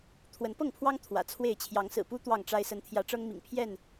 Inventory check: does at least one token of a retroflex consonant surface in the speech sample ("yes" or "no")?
yes